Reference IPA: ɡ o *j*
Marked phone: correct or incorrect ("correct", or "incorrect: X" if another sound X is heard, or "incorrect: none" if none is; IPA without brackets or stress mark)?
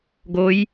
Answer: correct